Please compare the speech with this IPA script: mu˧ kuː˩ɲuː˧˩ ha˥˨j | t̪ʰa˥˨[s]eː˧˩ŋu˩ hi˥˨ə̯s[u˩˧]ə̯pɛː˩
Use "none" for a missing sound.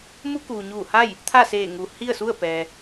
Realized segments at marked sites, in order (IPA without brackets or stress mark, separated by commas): s, u˥˨